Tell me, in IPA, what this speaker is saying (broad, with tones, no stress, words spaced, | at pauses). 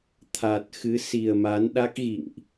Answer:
t̪ʰa˨˩t̚xɨ˨˦ si˨˩ə̯ma˨˦nɗa˦˥k̚ ɣḭ˧˨ŋʔ